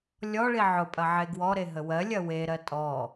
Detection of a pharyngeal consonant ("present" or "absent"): present